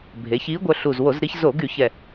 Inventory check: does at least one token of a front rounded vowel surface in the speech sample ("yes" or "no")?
yes